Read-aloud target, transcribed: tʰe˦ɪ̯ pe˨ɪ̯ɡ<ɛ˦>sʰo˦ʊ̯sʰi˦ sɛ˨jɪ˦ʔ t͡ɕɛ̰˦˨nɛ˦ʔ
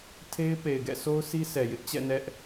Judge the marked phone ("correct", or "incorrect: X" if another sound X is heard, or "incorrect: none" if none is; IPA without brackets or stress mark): incorrect: ɛ̰˦˨